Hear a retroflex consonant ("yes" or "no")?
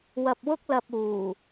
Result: no